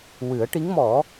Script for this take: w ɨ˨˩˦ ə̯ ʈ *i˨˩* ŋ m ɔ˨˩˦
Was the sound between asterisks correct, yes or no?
no